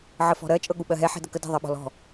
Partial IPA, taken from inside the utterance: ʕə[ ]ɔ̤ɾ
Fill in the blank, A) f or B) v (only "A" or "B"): A